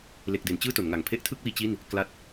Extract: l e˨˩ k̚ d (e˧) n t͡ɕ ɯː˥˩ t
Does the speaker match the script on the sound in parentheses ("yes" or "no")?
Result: no